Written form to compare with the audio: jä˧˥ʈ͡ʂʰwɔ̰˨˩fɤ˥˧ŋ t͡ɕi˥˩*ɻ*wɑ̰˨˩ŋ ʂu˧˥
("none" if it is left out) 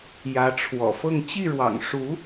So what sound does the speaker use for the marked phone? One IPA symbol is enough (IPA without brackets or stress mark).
ɻ